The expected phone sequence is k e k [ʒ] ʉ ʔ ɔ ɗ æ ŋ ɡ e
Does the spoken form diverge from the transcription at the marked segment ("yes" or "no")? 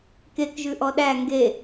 no